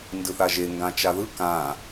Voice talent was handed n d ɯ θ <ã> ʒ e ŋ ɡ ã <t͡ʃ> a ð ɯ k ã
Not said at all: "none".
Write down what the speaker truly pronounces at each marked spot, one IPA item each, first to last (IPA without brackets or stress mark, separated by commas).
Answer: a, t͡ʃ